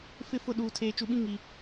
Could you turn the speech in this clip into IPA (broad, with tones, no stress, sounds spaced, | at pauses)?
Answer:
f ɪ˦˨ f ʊ˦˨ ɗ uː˨ tʰ eː˨ t͡ʃ u˨ ɓ ĩ˦ ŋ i˨